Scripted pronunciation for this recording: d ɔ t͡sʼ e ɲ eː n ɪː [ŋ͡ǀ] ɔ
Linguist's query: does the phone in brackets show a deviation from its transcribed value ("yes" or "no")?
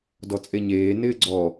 yes